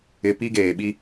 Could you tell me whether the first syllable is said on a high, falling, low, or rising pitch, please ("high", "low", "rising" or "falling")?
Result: low